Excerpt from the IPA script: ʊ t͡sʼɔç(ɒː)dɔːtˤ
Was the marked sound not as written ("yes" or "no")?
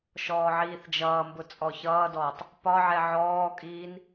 yes